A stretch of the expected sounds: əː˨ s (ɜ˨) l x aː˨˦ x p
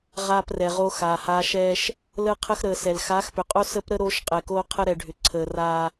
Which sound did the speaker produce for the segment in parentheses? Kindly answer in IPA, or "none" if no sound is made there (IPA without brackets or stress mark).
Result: ɛ˨